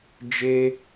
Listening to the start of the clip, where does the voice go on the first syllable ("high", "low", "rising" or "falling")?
high